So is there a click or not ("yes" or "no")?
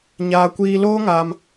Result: no